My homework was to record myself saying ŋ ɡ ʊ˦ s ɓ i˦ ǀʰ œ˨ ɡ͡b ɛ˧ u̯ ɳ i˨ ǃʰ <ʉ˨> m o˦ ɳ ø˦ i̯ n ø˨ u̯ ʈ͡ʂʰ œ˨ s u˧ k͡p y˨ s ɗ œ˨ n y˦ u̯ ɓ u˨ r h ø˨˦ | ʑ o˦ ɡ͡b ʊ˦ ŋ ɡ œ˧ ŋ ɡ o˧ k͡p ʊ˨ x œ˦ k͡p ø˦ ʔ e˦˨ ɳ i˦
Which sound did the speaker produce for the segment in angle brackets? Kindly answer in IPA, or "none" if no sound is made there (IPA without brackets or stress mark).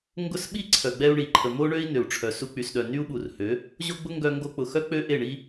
ə˨